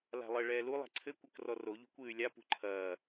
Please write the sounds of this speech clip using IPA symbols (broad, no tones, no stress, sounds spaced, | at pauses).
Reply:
l a̤ lˠ ɘ ɭ ɛː l u lˠ a̤ ǀʰ ɘ kʷ ɐ k r ɔ r o ʎ o̤ kʷ ɨː y̯ lʲ a p ṳ ǃʰ ɐː